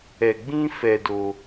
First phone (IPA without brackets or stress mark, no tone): ɛ